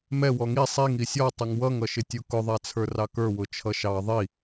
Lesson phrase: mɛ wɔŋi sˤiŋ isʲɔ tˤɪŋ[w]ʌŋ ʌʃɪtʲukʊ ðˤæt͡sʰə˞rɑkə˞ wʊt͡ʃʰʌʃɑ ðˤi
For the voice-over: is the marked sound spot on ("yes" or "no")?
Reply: yes